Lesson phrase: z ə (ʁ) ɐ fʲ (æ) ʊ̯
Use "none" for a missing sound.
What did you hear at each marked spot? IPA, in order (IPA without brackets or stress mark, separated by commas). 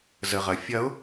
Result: ʁ, ɐ